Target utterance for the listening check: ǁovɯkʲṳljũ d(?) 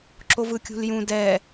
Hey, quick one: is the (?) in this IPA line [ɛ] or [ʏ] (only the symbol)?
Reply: ɛ